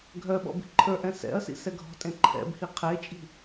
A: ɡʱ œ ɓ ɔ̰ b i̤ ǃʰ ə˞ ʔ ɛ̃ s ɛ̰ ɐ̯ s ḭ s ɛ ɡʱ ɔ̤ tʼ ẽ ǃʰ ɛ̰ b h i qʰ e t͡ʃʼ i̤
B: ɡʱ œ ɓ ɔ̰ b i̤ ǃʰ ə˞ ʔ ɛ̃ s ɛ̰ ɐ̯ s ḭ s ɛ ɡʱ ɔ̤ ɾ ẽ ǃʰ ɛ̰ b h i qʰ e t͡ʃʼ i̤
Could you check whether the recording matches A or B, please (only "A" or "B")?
A